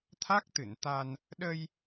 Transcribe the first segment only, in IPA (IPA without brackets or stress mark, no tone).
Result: t̪ʰ